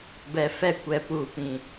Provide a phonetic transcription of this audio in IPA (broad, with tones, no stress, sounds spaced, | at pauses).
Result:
b ɛ˨ f ɛ˦ kʷ ɛ˨ p uː˨ p ĩ˨